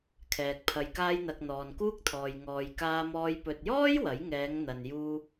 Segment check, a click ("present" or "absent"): absent